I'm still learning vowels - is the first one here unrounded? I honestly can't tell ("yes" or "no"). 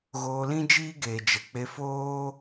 no